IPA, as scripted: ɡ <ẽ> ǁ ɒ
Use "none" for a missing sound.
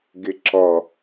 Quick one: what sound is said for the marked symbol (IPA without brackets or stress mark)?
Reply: e